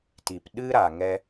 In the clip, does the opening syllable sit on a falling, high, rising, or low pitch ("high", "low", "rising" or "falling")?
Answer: low